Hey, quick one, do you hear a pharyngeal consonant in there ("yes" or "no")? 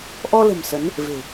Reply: no